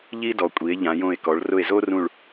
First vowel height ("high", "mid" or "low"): high